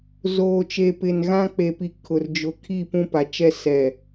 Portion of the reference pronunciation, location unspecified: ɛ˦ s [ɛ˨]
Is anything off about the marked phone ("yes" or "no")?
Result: no